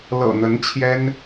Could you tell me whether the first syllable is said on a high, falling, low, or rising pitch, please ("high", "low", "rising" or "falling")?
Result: low